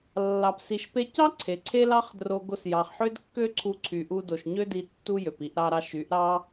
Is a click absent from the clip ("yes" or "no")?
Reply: no